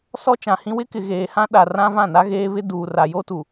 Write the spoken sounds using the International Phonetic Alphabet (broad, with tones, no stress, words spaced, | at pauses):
sɔ˦t͡ʃã˨hĩ˦ wɪ˦kɪ˨ ɣeː˨hã˦ ɗa˨rã˦ vã˦˨na˦ɣeː˦βɪ˦ duː˨ra˨jo˦tu˨